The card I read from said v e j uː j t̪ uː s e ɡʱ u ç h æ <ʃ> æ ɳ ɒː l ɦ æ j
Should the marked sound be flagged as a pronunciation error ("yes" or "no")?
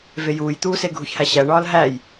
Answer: yes